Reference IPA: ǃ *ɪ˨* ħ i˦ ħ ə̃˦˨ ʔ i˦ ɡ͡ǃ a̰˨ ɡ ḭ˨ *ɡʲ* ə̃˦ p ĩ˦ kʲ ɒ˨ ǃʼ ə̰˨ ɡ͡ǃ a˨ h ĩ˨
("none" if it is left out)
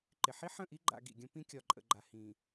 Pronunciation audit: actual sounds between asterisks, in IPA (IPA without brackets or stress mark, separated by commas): ɪ˨, ɡʲ